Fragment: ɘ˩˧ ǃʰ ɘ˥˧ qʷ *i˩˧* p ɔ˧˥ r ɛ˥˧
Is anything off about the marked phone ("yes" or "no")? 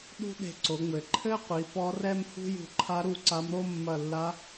no